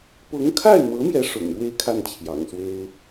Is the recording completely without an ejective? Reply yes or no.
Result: yes